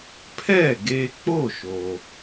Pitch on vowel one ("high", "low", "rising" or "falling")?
falling